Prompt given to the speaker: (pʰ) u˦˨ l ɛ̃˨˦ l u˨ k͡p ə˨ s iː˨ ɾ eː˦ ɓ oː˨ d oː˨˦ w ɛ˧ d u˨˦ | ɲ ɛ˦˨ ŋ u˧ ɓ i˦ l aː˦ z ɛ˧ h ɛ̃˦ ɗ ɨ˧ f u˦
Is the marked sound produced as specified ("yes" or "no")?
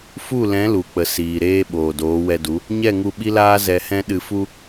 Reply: no